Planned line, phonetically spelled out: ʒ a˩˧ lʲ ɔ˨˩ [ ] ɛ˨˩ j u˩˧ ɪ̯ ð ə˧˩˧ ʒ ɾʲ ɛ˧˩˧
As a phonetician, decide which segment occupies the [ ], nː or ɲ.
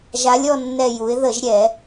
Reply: nː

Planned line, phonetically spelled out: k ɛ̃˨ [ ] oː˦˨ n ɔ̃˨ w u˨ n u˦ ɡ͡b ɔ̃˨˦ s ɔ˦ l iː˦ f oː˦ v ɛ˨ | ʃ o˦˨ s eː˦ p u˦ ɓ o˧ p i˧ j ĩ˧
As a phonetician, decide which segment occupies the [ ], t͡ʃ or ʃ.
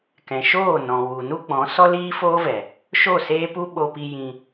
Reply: ʃ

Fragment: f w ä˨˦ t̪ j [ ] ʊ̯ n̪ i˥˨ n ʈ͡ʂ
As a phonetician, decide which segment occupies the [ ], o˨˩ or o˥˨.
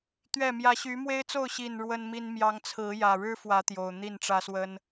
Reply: o˨˩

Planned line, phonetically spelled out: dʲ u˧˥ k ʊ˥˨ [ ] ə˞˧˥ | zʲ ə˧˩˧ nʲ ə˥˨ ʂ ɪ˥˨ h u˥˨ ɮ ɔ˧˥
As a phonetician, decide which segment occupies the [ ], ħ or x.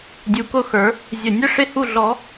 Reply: x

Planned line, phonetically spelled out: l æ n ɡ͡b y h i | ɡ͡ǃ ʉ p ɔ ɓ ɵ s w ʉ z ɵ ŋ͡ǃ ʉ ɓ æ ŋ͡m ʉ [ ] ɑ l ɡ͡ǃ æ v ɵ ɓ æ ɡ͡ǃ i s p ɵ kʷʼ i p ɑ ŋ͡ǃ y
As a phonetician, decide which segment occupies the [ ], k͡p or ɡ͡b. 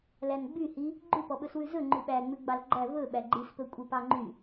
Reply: ɡ͡b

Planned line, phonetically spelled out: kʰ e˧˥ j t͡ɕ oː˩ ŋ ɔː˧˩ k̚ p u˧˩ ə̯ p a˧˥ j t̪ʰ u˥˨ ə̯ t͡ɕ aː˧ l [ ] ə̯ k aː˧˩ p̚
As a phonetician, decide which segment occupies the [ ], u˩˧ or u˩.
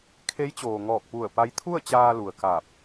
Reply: u˩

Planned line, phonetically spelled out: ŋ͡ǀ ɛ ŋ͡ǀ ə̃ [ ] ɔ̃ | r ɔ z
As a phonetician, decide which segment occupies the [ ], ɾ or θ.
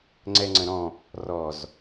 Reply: ɾ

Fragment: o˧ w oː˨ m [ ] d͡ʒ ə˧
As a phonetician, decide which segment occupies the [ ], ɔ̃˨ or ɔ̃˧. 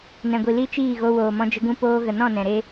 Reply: ɔ̃˧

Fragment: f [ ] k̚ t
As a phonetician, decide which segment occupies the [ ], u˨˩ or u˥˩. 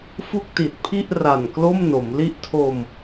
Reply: u˥˩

